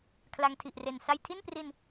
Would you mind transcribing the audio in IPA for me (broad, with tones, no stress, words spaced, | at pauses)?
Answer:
kʰla˧ŋtʰi˨˩ʔre˨˩n sa˧jtʰi˥˩npri˧n